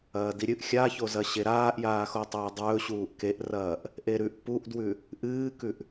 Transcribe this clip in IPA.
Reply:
ɐː d i ɾʲ ɨ ʔ xʲ a ç o z ɐ ɕ e ɾ aː ʔ j aː x o tˤ ɵː dˤ ɵː ɕ uː ʔ k e ʔ r ɐː ʔ | ʔ e ɾ ʉ ʔ p u ʔ d w ʉ | ʔ ɨː k ʉ ʔ

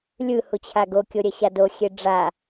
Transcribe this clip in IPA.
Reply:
lʲ ɯ h u t͡ɕʰ a ɡ o kʲ o ɾʲ ɛ ɕ a d o xʲ e ɖ͡ʐ a

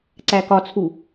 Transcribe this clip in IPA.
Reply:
ǀ æ k ɒ t͡sʰ u

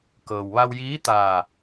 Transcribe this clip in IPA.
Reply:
k ɤː˩ w ʋ a˧ w j iː˧˥ t̪ aː˧˩

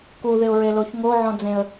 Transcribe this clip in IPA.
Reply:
k u ð ɪ ʊ̯ ɹ e l o ç ŋ o ʕ ɔ̃ d͡z ẽ ə̯

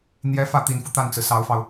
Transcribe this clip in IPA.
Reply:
n̪ j ɛ˧˥ f ä˥˩ t̪ i˨˩ n f u˦ t̪ a˥˩ n t͡s ɹ̩˩ s ɑ˧˥ ʊ̯ f ɑ˧ ʊ̯

